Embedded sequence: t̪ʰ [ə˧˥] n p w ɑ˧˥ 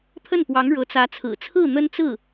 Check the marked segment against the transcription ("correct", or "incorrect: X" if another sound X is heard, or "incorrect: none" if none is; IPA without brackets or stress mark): incorrect: ə˥˩